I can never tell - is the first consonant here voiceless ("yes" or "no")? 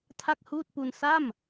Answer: yes